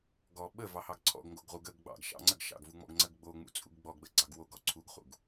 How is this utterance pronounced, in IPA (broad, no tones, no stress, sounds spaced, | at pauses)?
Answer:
ɡ ɔ ɓ ə v ɑ h ɑ ɡ ǀʰ ɔ̰ ɡ ŋ ɡ o ɡ ʁ u ɡ ə ɡ ɡ͡b ɑ̰ ɡ ʃ ɑ̰ ŋ͡ǀ ə ɡ ʃ ɑ̰ ɡ v u ŋ͡m ɔ̰ ɡ ŋ͡ǀ ə ɡ ɡ͡b o ŋ͡m ṵ t͡sʼ ṵ ɡ ɡ͡b ɔ ɡ ɡ͡b ə ɡ͡ǀ ɑ ɡ w o ɡ ɔ ǀʰ u ɡ χ ṵ ɡ